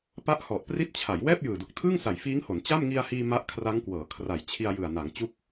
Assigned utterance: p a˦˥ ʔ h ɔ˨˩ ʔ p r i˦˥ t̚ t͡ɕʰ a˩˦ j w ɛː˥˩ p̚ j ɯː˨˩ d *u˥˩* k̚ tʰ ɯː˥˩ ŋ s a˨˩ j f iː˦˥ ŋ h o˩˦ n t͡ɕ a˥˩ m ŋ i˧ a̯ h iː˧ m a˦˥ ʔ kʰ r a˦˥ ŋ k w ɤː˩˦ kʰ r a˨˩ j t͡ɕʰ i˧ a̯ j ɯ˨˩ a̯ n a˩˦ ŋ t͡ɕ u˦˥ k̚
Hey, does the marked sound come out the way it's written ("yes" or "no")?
no